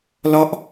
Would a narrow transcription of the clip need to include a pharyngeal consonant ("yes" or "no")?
no